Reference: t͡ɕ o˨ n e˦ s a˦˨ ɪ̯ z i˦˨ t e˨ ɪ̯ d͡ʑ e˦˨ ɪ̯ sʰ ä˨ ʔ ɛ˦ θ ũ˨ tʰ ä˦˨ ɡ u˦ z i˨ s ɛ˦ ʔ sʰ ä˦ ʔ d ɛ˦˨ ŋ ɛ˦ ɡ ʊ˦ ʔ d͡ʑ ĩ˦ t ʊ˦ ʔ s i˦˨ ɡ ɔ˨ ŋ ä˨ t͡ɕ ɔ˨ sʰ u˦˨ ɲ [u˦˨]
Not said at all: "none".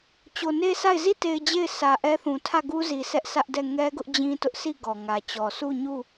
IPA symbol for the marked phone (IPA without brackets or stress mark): u˦˨